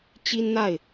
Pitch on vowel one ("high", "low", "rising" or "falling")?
high